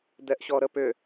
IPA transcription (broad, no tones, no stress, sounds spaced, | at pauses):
d ɛ ʔ ɕ ɔ ɾ ə p ʏ